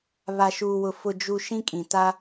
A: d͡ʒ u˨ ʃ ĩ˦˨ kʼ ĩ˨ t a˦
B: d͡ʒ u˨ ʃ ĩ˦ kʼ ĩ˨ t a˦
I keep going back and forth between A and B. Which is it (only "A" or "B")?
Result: B